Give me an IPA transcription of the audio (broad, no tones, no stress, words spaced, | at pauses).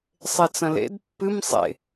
sˤet͡sɐ̃lḛd pːɨm sˤḛ